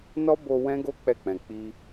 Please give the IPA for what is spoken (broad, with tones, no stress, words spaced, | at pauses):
nɔ˦bo˧ wɛ̃˦ɡo˦ k͡pɛ˦˨k͡pɛ̃˨ k͡pi˧